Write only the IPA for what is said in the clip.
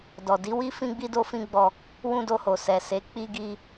dɔ˨di˨˦wi˦ fĩ˧ɡ͡bi˧ do˦fĩ˦ ɡ͡bɔ˧ | wũ˧do˧ho˨ sɛ˨ se˨˦ k͡pi˧ɡi˧

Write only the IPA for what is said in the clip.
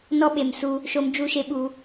nɔ˦ɓe˨msu˧ | ʃo˧md͡ʒu˦˨ʃe˦ ɓu˧

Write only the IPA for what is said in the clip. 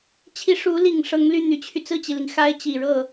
t͡ɕʰi˧˥ʂu˧˥li˨˩ŋ ʂɤ˧˥ŋly˥˩n̪y˨˩t͡ɕʰy˦ t͡sɹ̩˥˩t͡ɕi˩li˩ŋ xa˥ɪ̯ t͡ɕi˨˩ɻɤ˥˩

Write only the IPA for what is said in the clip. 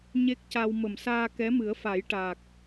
ɲe˦˥k̚ca˧w mə˨˩msaː˧kɛ˧˥mɨ˨˩˦ə̯ fa˨˩˦jʈa˨˩k̚

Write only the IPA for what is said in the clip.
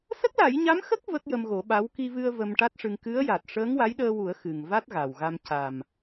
sə˦˥k̚la˨˩˦jɲa˧˥mxə˦˥k̚ və˦˥k̚jə˧mɣo˨˩˦ɓa˧˥w ki˧vɨ˧ə̯ və˧mʈa˦˥t̚ʂɨ˧ŋ kɨ˧˥ə̯ja˨˩t̚ ʂəː˧˥ŋwa˧˥jɗəː˧wu˨˩˦ə̯ xɨ˨˩ŋ va˦˥t̚ɣa˨˩wɣa˧m ca˨˩m

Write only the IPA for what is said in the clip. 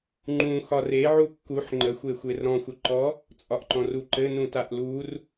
ŋ͡ǃũ xɒre ʕukːuħ ŋ͡ǃəxʷexʷer ɾɔ̃xʷəǃɔ | t͡sʼɒʔǃɔ̃ruǃɘ nũtaʔlur

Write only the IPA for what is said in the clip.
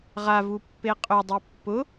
ʁavupːe qʼødˤi pːʊ

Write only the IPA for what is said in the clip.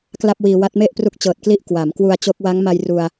kla˥˩p̚wiː˧ wa˦˥t̚me˥˩ʔpru˦˥k̚ t͡ɕɤː˨˩t̚kli˦˥ʔ kwa˩˦m kwu˧a̯t͡ɕo˦˥k̚ wa˦˥ŋma˧j ru˧a̯

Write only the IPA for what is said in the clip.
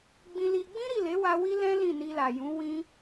ɡ͡bĩ˧li˧ ɡ͡bĩ˦ɾi˦˨le˨˦wa˧ wi˦lɛ̃˦ lĩ˦˨ni˧ la˨jũ˨˦wĩ˦

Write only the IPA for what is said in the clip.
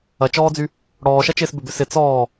ɐt͡ʃɔːd͡zy | ɽɔːʃɐt͡ʃɪːs bʏbʏ sɪ t͡sɔː

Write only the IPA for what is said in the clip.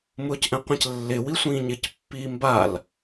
mʊːcʔɛ̃qʷɛ̃clːɪ wisʷĩːɲɪc pːiːmbal

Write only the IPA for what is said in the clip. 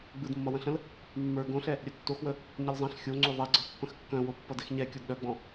ɡ͡bɯdmːʌwə̃ɬə̃l | mːə˞ ɡõɬɛ | ɾʲœtːoxwə | ɲʌlzˤɛ̃ɬ xʲo ŋ͡ǀoðˤɛɡ͡ǀʌ pːə̃xkːœ̃wo pːʌdɛxɲɛ kʲɔdɗœɡ͡bɔ̃

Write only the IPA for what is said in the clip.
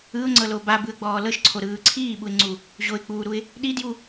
ɯʊ̯ŋ͡ǀɤlo babɯə̯ɡ͡bɔː lɤʃǀʰoɾɯː ǀʰiːɓuɪ̯ŋ͡ǀu | ʑoɪ̯k͡puːɾuɪ̯ | ɗidju

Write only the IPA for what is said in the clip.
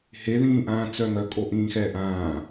he ðĩːʔãːt͡sœŋœ kʼoʔĩːxɛːʔãː

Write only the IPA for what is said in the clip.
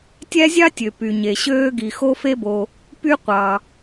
tʲæ˥zʲɑ˥tʲø˩ py˩ɲe˩ɕøː˥ ɡi˩xo˥fe˥bo˩ | py˥qʷɑ˩

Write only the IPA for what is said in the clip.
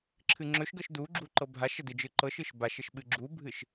ǁʰɨŋ͡ǁɵʃɡɤʃ duɡ͡ǁu ǃɤbʱaʃə dɨd͡ʒɯ ǃɤʃɯʃ baʃəʃ ɓɨɡ͡ǁubʱɨʃ

